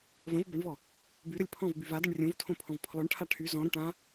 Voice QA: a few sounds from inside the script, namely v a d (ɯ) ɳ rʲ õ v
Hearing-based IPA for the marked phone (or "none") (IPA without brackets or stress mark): ə